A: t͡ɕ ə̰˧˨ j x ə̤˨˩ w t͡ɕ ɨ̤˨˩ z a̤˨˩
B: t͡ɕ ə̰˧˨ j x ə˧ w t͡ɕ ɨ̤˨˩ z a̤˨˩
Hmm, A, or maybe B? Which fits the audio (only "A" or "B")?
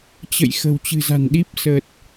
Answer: A